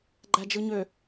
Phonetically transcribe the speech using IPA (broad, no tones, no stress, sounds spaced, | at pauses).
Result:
ɡ͡ǃ æ d͡ʒ ɯ ɲ ø